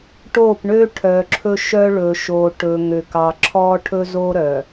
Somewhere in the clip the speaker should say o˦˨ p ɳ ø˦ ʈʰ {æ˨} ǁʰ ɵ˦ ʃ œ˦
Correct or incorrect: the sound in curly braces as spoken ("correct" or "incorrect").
incorrect